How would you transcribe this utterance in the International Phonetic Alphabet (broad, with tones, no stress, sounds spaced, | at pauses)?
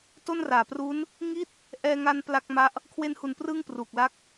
t o˥˩ n r aː˨˩ p r u˦˥ n | ŋ i˥˩ t̚ | ʔ ɛː˧ ŋ a˧ n p l a˥˩ k̚ m a˦˥ ʔ | kʰ w e˧ n h u˨˩ n p r ɯː˥˩ ŋ p r uː˨˩ k̚ l a˦˥ k̚